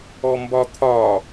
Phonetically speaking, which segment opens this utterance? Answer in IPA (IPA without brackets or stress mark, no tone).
ɔ